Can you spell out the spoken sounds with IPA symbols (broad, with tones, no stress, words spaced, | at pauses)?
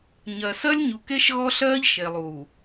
ɲɜ˨ sɜ˦lʲɲu˨ke˦ʃ ɣɔ˦ɬɜː˦ʎʃe˨lˠuː˨